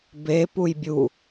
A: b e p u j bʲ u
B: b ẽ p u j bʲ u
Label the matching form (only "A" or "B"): A